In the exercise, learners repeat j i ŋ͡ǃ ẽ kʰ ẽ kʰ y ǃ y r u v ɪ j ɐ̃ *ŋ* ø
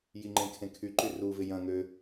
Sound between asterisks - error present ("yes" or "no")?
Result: no